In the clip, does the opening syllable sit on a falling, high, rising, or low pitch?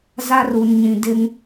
high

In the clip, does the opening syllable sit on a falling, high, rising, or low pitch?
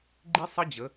high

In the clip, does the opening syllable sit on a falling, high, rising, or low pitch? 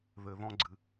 low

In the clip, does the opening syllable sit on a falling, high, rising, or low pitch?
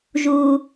low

